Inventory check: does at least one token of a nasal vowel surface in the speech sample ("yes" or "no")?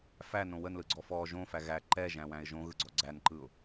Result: yes